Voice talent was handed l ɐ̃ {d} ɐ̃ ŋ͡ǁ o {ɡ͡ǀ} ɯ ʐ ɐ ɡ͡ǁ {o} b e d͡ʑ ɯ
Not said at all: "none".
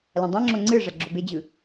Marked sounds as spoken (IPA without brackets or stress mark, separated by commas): dˤ, ŋ͡ǀ, o